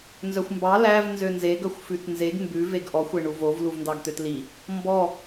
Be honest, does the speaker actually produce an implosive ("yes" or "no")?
no